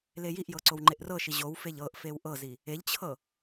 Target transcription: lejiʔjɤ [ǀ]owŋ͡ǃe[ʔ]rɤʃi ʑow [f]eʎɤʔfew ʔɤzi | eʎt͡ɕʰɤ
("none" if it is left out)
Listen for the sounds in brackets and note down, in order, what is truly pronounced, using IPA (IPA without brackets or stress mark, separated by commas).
ǀ, ʔ, f